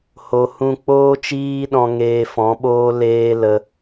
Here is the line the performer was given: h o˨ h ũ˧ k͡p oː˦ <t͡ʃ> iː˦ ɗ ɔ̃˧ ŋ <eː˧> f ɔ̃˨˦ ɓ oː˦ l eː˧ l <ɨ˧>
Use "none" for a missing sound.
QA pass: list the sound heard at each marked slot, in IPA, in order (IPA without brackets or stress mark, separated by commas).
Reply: t͡ʃ, eː˧, ə˧